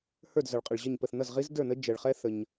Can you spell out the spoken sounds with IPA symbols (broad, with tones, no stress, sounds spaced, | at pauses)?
h ə˞˥˩ d z ə˩ ɭ qʼ ə˩ ɭ ʑ ə˥˩ ɲ p ə˥˩ θ n ʌ˥˩ z ʁ i˦˥ z d ə˞˥˩ n ə˦˥ d͡ʒ ɛ˩ ɭ χ ɛ˦˥ θ ə˩ ɲ